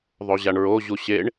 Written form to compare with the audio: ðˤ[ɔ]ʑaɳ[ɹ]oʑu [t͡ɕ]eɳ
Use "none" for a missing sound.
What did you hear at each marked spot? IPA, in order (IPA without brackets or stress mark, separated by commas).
o, ɹ, ɕ